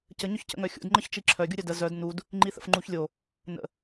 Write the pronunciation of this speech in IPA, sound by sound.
c ə ɲ ʊ ç c ə̰ ŋ œ xʲ ṵ d ŋ͡ǃ ə ç t͡ʃ i ǁʰ œ ɡʲ u ɾʲ œ d ə z œ d n u d | ŋ͡ǃ i θ ə̰ f ŋ͡ǃ u ç lʲ o | n ə̰

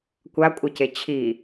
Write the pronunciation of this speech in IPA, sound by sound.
kʷ a kʷʼ ʌ c e t͡ɕʰ i

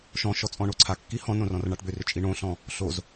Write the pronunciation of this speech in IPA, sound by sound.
ʃ ɔ̃ ʃ ɔ t͡sʼ ɔ̃ ɳ o ǀʰ a kː i h ɔ̃ n õ r ɔ̃ r ɳ a ʈ b ʏ r ʏ t͡ʃʼ i ɳ õ ɬ ɔ̃ | ɬ o z

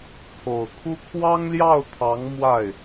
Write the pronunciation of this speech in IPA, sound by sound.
pʰ o˨˩ ʊ̯ kʰ u˥ kʰ w ɑ˥ ŋ l j ɑ˥˩ ʊ̯ t̪ʰ ɑ˧˥ ŋ m w a˥˩ ɪ̯

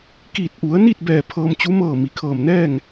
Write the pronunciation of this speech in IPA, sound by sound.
k iː˧˩ t̚ ʔ u˩˧ ə̯ n i˥˨ t̚ b ɛː˧˩ pʰ ɤː˧ m t͡ɕ u˧˥ m ɤː˧˩ m i˩ kʰ ɤː˧˩ m n ɛː˥˨ ŋ

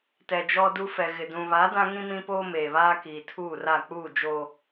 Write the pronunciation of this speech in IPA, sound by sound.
t ɛ˨ d͡ʒ ɔ˦ d u˦ f ɛ˨ ɣ ɪ˨ d ũ˨ β a˨˦ d ã˦ ŋ ĩ˦ m ĩ˦ p oː˦ m eː˨ β aː˦ k iː˨ tʰ uː˦˨ r a˦˨ k͡p uː˦˨ d͡ʒ oː˨

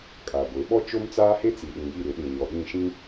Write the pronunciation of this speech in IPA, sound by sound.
kʼ aː˨ ɡʷ e˨˦ ɓ ɔ˦ t͡ʃ o˦ m t͡s aː˦ h e˦ t͡s i˨ ɗ ĩ˨ j i˦˨ ɾ ɪ˨˦ ɗ ĩ˨ ɲ ɔ˨ ɗ ĩ˦˨ ʃ ĩ˦

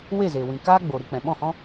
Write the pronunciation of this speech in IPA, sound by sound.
w e˦˨ z e˨ w ĩ˨ k aː˦ ɡ͡b o˨ ɾ ɨ˧ k͡p ɛ̃˨ ɓ ɔ̃˦˨ h ɔ̃˦

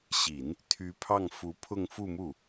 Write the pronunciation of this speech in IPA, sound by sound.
ɕ i˨˩˦ n | t̪ʰ y˧˥ pʰ ɑ˥˩ ŋ f u˧˥ pʰ ʊ˥˧ ŋ f u˥˧ m u˥˩

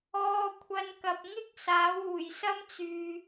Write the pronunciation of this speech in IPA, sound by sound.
ɔː˧ kʷʰ ɐ˧ n k ɐ˨ p̚ ŋ ɪ˥ k̚ s aː˨˥ w uː˨˩ j s ɐ˥ m t͡s yː˨

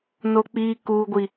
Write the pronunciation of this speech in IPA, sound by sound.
n o˨ k͡p iː˨ k uː˨ ɡʷ i˨

